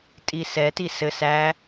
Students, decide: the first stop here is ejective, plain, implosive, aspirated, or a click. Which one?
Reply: ejective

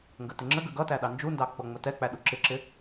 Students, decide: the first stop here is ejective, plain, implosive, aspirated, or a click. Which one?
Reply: plain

